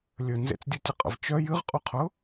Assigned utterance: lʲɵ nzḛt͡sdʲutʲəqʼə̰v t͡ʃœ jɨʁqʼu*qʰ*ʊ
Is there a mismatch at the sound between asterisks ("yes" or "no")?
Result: no